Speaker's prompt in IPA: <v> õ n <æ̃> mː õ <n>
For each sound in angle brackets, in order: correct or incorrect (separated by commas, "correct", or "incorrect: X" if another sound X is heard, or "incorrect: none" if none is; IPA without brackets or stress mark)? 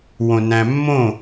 incorrect: w, correct, incorrect: none